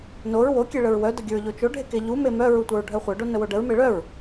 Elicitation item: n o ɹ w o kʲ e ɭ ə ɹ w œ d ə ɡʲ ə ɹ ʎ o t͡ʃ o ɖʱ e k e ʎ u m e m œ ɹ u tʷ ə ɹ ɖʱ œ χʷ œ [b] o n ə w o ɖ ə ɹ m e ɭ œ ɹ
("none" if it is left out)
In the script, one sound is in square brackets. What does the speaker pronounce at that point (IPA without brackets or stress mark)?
ɖ